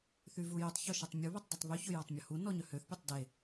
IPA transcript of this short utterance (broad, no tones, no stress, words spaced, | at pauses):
θyvujytˤçɔ ʃetˤmʲuβɵtˤ dʉtˤβyçɵ jɔtˤmʲɔhu nɔɲœhøθpʲɔtˤ de